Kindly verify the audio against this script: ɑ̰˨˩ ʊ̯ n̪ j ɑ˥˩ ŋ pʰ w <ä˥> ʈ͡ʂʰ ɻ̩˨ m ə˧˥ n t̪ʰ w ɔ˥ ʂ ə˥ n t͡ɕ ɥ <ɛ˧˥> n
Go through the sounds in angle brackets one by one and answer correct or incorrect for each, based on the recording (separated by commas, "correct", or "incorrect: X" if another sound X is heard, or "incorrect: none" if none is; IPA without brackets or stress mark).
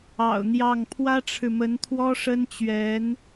correct, correct